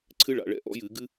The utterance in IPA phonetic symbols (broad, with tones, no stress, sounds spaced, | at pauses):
ǀʰ ɨ˥ ɭ a̰˩˧˩ ɭ ɛ̰˦˨ ʔ ɔ̰˨˥ j ɨ˧˩˧ ɡ ɨ˥